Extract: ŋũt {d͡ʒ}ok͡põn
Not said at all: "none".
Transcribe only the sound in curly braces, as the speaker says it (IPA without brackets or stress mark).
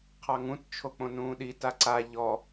t͡ʃʰ